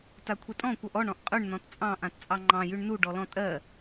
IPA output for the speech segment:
t a kʷʰ ɛ tʼ ɔ̃ kʷ ʌ ʔ ɔ ɳ ɔ̃ ʔ qʼ ʉ ɳ n ɔ̃ t t͡sʼ ɑ̃ ʔ ã t t͡sʼ ɑ ŋ͡ǃ ɑ̃ j ʉ ɳ n u ɖ ɔ l ɔ̃ tʼ ɜ

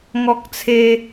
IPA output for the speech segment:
ŋ ɔ˦ k̚ t͡sʰ e˦

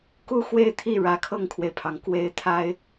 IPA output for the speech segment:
k u˥ x w e˥˧ ɪ̯ t̪ʰ i˥˩ ɻ ä˨˩ kʰ ɤ˥˩ ŋ kʰ w e˩ ɪ̯ pʰ ɑ˩ ŋ k w e˥˩ ɪ̯ t̪ʰ a˥ ɪ̯

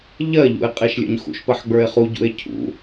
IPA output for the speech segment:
ʎ ɜ ʎ ṵ e̯ qʼ e ʃ lʲ ə̰ ɲ x ṵ ʃ p ɜ ħ ɡ͡b ə˞ e̯ χ u ɟ ṵ e̯ cʰ ṵ

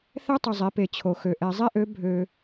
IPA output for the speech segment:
θ ɛ˥ tˤ y˨ zˤ i˩˥ p e˨ t͡ɕʰ o˨ x ø˨ ʔ ɛ˨ zˤ i˥ ʔ ø˩˥ bʱ ø˨

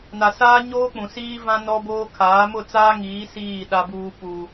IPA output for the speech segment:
n a˨ s aː˦ ɲ oː˦ k͡p ũ˨ s iː˦ v ã˦ n ɔ˦ b oː˦ kʰ aː˨˦ m ʊ˦˨ t͡s aː˦ ŋ iː˨˦ s iː˦˨ ɗ a˦ b uː˦ p u˦

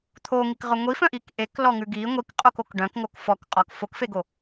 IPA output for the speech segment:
t̪ʰ o ŋ i k ʁ œ ŋʷ i f œ̃ ʔ i k ʔ e k l ɔ ŋ ʉ ɡ i ŋʷ i k qʼ o k o k ɖ œ̃ k ŋ o k f ɔ k qʼ ɔ k f o k f e ɡ o

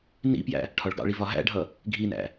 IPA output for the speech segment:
n ḭ p j æ̰ | ʈʰ ɒ ɭ ɡ ɑ̰ ɭ i v ɒ ɦ æ̰ ɖʱ ʌ | ɡʱ i n æ̰

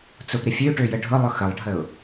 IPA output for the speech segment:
t͡s ʊ p ɾ ɪ fʲ ø ʈ ø j ə ɖʱ ʊ lˠ ʊ x ə lˠ ɖʱ ə ʊ̯

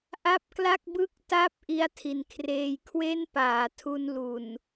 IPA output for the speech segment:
ʔ a˥˩ p̚ k l a˥˩ k̚ b ɯ˥˩ k̚ t a˥˩ p̚ ʔ i˦˥ a̯ tʰ i˩˦ n kʰ r eː˧ j kʰ w e˥˩ n p aː˩˦ tʰ u˧ n l u˨˩ n

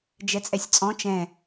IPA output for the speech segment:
d͡ʒ ɛ t͡sʼ ɛ sʲ t͡sʼ ɔ̃ t͡ʃ ɛ̃

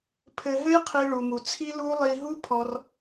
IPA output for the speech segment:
pʰ ɘ˧ ɦ ɘ˦ j qʰ i˧ ɭ u˧ m u˧ t͡sʰ i˦ l u˦ lˠ i˧ ɦ u˦ pʰ ɔ˧ r

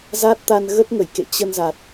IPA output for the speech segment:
z a˦˥ t̚ t̪ a˧ n ɣ ə˦˥ t̚ ŋ ə˧˩ j k ḛ˧˨ t͡ɕ ə˧ n z a˨˩ t̚

